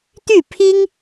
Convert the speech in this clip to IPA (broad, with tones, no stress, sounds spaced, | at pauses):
t̪ y˥˩ pʰ i˥ ŋ